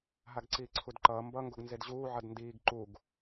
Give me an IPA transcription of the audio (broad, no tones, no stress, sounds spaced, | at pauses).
ɦ a ɡ ǀ iː ǀʰ u d ǃ ʌː m b ʌ ŋ ɡ o ɡ n z e d ʑ uː ʕ ʌ d n d iː ɡ ǃ u ɡ